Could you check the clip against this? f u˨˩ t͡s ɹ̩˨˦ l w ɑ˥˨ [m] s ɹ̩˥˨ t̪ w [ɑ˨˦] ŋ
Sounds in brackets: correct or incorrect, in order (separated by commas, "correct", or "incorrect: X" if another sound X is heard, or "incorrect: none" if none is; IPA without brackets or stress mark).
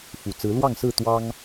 incorrect: ŋ, incorrect: ɑ˦